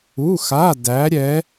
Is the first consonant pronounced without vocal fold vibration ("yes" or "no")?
yes